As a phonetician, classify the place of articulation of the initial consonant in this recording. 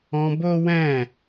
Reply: labial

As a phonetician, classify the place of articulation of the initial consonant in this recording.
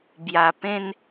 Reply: labial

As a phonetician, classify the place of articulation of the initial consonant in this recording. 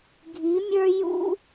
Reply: velar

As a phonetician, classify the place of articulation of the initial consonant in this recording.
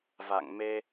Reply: labial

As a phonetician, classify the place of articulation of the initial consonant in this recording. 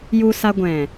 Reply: palatal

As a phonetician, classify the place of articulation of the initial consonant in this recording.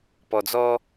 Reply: labial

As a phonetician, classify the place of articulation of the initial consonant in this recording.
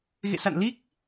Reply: velar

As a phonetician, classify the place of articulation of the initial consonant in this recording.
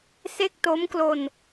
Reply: alveolar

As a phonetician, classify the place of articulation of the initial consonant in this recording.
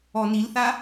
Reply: alveolar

